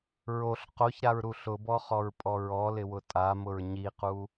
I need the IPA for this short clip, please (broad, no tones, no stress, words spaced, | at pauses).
ɹoɬ qoçɾaɹɾu ɬʊbɔχɔɹpʼɔ ɹɔlɪwʊ tʼamʊɹ ɲiqu